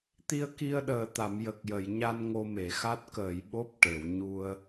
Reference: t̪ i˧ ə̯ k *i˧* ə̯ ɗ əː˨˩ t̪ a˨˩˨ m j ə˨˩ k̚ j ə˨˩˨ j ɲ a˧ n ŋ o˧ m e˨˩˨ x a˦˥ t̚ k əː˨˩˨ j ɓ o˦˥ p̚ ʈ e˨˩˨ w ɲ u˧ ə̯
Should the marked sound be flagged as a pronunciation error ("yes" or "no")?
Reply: no